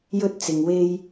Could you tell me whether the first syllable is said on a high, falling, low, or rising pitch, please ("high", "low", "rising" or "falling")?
high